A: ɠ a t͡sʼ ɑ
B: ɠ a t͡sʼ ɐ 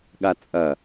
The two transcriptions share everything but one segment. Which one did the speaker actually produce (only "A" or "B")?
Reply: B